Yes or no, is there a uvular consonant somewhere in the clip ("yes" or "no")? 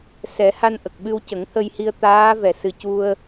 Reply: no